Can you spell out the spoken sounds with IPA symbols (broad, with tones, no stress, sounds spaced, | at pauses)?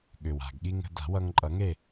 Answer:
ɠ ʏ˩ w a̤˩ ɡ ɠ i˧ ŋ ə̤˧ d a̤˨˩˦ w ʌ˧ ŋ ǃʼ ʌ˨˩˦ ŋ e˥˨